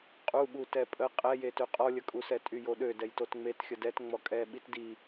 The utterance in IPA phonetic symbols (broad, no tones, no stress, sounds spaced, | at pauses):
qʼ u ɓ u t ɛ pʼ ə qʼ ɛ j e t ø qʼ ɔ lʲ ə kʼ u s ɛ tʼ y j o ɗ ø d ɛ j t o t ŋ͡m e t xʲ ə d ɛ t ŋ͡m ɔ kʼ ɛ ɓ i t d i